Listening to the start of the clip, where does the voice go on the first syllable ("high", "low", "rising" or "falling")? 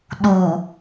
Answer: low